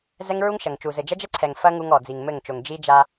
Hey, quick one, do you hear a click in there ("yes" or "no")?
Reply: yes